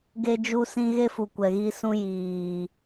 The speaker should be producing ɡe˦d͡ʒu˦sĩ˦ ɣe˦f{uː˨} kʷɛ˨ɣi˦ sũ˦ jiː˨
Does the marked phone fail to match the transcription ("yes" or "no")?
yes